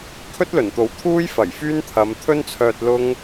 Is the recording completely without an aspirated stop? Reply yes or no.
no